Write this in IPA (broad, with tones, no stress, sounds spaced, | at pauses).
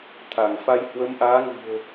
t̪ʰ a˧˩ ŋ f a˧ j h w ə˨˦ m ʔ aː˨˦ ŋ ɨ̤˨˩ ə̯